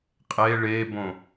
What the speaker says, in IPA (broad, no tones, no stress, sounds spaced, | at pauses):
qʼ e ɭ e b õ